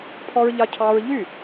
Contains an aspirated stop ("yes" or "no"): yes